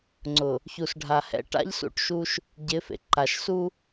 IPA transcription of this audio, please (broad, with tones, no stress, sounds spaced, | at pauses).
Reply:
ŋ͡ǀ ʊ˨ | ç u˨ s ɖʱ a˨ h ɛ̰˦ ʈ a̰˦ ʎ s ṵ˦ ʈ ʃ u˦ ʃ | ɟ ɪ˨˦ f ḛ˨ ǃ a˨ ʃ s u˦